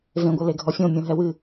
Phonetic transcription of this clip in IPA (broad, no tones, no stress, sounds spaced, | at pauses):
v ẽ ɡʷ ɐ l e ɡʱ ɔ fʲ õ mʲ õ ɦ ɛ w ɨ